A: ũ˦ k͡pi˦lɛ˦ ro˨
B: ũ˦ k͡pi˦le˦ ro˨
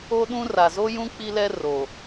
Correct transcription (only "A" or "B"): A